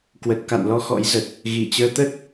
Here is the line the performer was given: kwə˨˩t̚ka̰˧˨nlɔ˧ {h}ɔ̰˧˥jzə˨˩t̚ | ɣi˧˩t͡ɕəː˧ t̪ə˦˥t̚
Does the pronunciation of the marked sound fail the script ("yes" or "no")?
yes